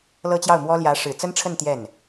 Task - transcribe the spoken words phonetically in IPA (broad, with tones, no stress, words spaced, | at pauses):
lɤ˥t͡ɕjɑ˥˩ʊ̯mwɔ˥ ljä˧˥ ʂɻ̩˨˩t͡sə˥nʈ͡ʂʰə˥˧n t̪jɛ˥˩n